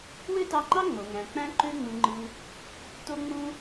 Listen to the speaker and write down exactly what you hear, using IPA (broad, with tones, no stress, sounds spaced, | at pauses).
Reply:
w ø˥ t ɑ˧ ŋ͡ǃ ɑ˥ ŋ͡m o˩ ŋ æ̃˩ k͡p æ̃˧ ǃ ø˧ ŋ͡m ɯ˩ ŋ͡ǃ ɯ˩ | t o˧ ŋ͡m ũ˧